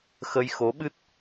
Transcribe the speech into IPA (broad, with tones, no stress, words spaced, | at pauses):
xə˧jxo˧˥ɓɨ˦˥t̚